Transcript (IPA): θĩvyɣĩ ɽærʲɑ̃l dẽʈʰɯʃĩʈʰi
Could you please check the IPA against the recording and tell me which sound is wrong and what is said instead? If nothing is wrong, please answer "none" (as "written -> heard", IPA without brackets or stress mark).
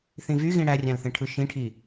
d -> θ